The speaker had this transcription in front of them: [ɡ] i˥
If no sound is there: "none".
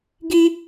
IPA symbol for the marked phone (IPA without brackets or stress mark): ɡ